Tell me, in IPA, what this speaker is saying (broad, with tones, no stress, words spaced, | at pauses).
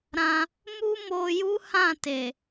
ɾã˧ | mu˦mo˧ju˦ hã˦˨te˨